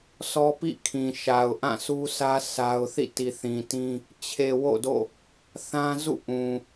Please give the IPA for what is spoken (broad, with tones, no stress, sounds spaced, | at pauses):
s ɔ˦ p ḭ˦˨ kʰ ĩ˨ ʃ a˨ ʊ̯ ʔ ã˦˨ s u˦ s ä˦ sʰ a˦ ʊ̯ θ ḭ˦˨ t i˨ θ ĩ˨ t ĩ˦ | t͡ɕʰ e˨ w o̰˦˨ d o̰˦˨ | θ ã˦ z ṵ˦˨ ʔ ũ˨